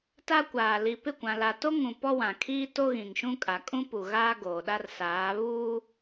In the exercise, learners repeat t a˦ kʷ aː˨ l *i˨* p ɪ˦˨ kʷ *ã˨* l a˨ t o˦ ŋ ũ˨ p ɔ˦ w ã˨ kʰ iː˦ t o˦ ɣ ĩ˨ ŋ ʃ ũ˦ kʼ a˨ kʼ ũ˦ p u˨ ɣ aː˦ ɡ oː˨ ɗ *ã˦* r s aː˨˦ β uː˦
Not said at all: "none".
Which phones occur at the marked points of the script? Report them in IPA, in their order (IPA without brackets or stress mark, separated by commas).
i˨, ã˨, a˦